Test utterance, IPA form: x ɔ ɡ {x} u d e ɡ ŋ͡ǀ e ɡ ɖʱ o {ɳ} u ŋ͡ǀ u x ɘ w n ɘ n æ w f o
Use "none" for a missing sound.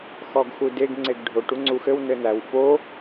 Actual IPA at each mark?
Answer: x, ʈ

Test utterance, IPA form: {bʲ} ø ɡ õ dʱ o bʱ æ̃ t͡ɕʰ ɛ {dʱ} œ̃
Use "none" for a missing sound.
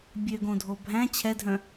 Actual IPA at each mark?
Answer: bʲ, dʱ

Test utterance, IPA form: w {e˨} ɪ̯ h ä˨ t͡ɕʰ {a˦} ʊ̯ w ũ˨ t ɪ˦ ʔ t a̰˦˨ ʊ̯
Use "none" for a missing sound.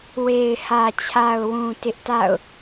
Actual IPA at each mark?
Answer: e˨, a˨

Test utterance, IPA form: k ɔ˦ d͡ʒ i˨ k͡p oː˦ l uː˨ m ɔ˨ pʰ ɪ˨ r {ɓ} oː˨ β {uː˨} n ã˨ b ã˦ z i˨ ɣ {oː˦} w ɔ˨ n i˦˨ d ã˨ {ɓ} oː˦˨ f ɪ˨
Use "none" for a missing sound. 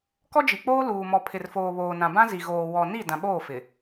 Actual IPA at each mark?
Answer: f, oː˨, oː˨, ɓ

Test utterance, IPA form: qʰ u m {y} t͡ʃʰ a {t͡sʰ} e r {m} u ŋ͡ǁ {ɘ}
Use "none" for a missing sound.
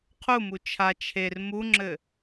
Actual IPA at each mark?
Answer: u, t͡ʃʰ, m, ɘ

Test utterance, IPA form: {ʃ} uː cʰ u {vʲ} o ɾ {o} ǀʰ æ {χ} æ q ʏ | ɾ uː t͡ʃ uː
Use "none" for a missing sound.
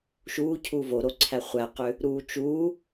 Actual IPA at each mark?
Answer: ʃ, v, o, χʷ

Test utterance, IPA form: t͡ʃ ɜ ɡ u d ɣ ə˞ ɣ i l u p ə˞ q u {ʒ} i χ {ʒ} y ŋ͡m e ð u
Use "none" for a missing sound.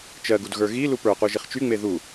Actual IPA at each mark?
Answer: ʒ, t͡ʃ

